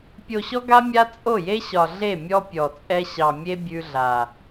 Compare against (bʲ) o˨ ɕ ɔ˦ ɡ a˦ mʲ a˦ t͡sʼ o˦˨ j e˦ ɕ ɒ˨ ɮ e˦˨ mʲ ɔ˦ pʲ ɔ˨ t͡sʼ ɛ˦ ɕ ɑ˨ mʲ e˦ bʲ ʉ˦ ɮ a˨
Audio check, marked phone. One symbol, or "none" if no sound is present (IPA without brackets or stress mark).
pʲ